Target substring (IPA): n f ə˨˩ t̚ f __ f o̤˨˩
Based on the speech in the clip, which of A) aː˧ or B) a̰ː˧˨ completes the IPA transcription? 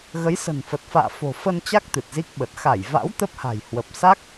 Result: B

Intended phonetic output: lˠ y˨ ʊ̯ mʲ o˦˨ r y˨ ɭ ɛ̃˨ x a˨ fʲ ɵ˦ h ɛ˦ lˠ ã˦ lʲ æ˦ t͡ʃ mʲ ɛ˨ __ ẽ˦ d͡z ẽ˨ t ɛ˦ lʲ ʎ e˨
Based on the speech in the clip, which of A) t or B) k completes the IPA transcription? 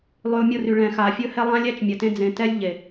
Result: A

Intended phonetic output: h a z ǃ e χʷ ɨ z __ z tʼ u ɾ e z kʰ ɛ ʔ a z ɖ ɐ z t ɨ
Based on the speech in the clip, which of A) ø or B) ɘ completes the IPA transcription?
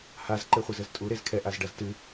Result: B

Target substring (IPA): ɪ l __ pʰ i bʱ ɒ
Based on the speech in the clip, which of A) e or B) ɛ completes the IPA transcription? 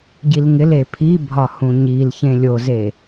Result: A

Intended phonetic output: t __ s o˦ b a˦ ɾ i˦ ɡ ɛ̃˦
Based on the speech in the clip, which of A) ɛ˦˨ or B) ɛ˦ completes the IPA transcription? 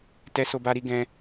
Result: B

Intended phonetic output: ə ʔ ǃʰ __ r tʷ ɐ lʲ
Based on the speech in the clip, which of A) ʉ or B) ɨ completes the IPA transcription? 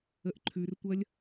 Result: A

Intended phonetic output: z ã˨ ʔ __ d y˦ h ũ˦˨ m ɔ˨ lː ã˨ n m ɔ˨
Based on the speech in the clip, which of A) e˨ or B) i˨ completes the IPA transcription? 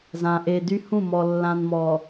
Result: A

